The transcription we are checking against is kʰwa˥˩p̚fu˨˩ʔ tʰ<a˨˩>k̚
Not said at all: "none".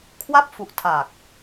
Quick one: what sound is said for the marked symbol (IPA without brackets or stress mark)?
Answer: a˨˩